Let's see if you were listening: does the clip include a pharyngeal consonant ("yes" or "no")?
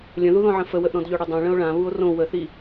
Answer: yes